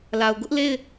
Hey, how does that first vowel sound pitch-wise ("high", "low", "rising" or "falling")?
low